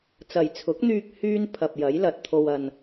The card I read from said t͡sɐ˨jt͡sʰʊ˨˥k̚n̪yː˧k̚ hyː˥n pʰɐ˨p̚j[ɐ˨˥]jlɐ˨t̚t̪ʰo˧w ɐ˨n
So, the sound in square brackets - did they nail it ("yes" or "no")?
yes